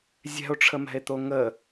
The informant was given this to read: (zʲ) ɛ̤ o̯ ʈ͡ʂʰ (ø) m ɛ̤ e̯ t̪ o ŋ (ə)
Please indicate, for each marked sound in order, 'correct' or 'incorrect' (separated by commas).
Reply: correct, incorrect, correct